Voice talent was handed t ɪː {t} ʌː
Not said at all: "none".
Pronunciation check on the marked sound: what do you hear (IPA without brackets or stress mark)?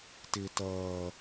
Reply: t